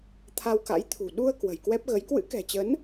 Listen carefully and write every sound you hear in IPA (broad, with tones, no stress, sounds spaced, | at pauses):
t̪ʰ a˧ w k a̰˧˥ j t̪ʰ ṳ˨˩ ɗ u˧ ə̯ k w ə̤˨˩ j k w ɛ˦˥ p̚ ɣ ə˨˦ j k w ɨ̰˧˥ k ɛ̤˨˩ t͡ɕ ə˨˦ n